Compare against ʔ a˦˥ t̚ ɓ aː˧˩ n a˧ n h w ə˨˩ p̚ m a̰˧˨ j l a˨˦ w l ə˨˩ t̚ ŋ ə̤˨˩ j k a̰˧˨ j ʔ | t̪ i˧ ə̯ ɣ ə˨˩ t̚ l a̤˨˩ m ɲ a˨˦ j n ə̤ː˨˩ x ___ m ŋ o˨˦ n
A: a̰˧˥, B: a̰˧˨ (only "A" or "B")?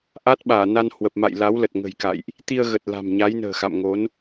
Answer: B